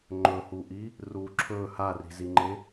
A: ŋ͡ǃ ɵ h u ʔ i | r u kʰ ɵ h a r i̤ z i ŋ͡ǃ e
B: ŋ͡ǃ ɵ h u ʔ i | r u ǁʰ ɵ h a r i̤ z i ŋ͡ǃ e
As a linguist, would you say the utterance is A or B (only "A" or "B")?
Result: B